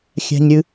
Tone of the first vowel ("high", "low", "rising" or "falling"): high